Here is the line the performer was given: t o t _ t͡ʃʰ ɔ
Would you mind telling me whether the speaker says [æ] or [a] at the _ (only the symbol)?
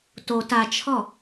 a